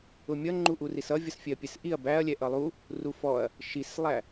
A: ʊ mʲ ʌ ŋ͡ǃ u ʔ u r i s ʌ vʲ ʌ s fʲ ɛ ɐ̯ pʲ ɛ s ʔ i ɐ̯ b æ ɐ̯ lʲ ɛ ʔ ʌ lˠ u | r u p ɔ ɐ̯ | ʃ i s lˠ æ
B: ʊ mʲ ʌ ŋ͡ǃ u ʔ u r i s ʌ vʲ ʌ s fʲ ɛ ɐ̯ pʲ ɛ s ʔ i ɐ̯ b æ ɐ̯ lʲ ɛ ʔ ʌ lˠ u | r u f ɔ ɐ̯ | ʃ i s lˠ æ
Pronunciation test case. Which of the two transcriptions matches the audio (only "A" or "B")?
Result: B